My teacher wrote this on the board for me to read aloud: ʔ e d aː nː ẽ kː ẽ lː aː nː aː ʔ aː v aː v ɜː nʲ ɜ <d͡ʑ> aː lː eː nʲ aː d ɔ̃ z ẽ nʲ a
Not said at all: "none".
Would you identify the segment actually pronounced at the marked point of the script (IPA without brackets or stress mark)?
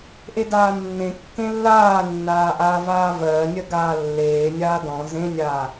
ɡ